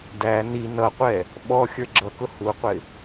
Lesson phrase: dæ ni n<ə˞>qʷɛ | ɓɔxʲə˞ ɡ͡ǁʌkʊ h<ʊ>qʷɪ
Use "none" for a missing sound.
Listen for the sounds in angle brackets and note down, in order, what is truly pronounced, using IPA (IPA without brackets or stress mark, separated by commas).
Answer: ʌ, u